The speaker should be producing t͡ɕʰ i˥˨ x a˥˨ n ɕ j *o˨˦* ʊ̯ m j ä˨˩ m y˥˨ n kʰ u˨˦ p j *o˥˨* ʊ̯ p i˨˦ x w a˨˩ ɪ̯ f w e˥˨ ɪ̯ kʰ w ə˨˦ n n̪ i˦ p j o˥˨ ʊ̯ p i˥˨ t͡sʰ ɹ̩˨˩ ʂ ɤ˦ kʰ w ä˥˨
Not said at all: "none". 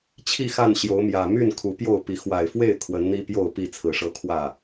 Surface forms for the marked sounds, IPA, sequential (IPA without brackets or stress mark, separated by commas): o˨˦, o˥˨